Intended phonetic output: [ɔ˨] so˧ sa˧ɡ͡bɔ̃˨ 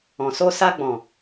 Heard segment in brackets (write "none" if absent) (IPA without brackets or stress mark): ɔ̃˨